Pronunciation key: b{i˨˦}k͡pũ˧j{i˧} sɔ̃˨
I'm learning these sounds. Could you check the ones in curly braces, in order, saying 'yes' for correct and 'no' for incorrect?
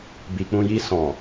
no, yes

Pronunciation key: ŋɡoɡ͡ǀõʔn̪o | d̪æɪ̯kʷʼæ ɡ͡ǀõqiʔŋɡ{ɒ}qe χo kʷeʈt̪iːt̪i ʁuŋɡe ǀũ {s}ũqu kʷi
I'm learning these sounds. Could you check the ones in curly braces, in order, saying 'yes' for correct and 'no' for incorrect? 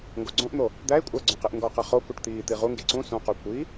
yes, yes

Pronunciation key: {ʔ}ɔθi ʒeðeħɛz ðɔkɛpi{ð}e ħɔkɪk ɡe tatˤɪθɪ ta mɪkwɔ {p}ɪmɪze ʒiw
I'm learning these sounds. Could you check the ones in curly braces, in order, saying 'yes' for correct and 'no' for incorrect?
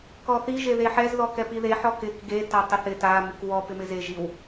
no, yes, yes

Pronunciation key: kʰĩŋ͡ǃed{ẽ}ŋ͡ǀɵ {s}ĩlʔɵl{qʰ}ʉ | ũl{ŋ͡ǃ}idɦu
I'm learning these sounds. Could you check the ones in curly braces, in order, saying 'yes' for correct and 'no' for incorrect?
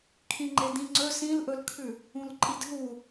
no, yes, no, no

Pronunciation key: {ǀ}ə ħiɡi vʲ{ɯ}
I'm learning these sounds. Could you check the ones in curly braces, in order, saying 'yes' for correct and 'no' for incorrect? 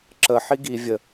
no, no

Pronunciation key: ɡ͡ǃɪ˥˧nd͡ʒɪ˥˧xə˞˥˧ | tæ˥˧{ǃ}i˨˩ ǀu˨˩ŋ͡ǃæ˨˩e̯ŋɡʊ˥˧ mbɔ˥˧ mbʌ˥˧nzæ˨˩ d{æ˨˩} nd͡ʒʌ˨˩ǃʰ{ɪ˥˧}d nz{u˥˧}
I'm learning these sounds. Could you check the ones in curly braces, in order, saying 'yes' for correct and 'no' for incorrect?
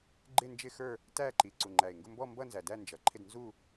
yes, no, yes, yes

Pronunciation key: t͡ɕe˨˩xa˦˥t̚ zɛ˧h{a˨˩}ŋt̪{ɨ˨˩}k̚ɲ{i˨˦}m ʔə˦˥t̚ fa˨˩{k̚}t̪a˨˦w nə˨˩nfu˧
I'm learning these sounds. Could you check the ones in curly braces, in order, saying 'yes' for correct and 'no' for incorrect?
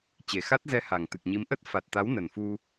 yes, yes, yes, no

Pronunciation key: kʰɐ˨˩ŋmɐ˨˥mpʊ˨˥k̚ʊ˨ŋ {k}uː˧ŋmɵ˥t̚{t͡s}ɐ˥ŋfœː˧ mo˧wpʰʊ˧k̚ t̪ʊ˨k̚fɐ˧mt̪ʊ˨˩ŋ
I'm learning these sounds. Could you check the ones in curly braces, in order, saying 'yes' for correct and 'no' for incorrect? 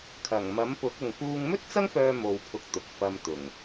yes, yes

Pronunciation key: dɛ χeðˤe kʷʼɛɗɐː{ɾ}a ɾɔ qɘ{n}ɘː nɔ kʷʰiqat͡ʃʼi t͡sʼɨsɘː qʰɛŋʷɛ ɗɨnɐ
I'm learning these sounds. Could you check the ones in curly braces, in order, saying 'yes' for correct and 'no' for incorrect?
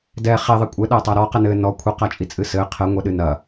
no, yes

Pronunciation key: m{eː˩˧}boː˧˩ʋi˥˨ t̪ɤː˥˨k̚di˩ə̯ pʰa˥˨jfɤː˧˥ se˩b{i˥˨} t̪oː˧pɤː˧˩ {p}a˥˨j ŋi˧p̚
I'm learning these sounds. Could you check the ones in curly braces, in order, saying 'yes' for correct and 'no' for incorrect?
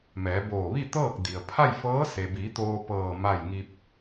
no, no, no

